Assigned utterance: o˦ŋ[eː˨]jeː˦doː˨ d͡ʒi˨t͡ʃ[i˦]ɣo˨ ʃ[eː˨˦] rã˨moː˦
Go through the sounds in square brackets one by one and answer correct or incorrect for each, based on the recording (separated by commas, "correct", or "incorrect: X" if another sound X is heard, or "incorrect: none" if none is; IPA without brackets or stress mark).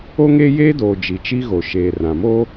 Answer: incorrect: eː˦, correct, incorrect: eː˨